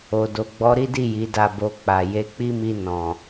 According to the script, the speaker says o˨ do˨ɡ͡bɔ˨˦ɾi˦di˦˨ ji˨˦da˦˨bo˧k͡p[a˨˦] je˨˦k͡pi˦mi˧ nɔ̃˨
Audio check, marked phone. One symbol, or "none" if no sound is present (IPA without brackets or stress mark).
a˨